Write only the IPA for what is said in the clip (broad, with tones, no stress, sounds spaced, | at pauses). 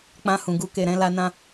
k͡p ã˧ h ũ˨ ɡ u˧ k e˨ ɾ ɛ̃˧ l a˧ n ã˦